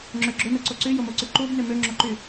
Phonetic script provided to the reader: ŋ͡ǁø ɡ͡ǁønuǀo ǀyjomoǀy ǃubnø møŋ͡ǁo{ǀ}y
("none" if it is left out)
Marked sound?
ǃ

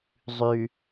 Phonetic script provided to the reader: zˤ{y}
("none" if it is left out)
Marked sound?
y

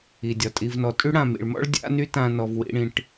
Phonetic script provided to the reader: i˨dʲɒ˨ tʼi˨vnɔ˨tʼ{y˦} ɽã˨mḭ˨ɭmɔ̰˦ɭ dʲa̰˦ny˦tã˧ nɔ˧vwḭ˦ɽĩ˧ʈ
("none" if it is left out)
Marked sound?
y˦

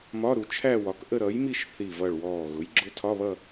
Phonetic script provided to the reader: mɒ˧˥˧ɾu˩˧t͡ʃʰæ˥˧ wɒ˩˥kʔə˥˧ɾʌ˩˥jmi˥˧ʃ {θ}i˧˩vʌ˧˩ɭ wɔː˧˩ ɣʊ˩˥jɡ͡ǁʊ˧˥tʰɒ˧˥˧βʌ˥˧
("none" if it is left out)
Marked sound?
θ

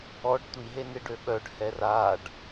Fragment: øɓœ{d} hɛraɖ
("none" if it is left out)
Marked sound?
ɖ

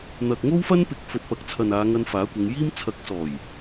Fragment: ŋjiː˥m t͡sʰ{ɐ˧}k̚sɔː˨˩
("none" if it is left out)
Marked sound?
ɐ˨˥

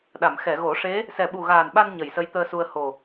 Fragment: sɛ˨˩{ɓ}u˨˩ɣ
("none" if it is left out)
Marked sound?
ɓ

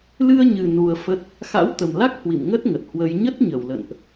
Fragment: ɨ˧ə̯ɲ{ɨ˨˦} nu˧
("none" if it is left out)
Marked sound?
ɨ˨˩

